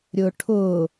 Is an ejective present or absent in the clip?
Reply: absent